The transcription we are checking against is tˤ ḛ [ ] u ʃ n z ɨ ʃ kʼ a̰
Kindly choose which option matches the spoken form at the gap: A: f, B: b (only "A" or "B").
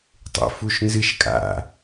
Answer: A